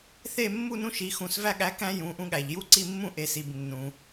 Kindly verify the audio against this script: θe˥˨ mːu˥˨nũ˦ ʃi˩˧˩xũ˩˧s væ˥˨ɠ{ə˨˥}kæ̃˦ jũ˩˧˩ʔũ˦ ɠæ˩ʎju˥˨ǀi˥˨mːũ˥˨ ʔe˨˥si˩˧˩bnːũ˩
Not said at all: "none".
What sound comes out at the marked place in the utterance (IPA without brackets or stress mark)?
æ˨˥